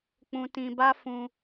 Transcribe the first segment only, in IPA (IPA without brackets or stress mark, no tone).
k͡p